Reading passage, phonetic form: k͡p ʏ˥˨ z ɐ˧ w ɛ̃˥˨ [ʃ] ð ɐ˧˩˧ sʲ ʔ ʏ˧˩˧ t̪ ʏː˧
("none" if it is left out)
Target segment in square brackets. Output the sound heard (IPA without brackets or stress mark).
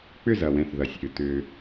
θ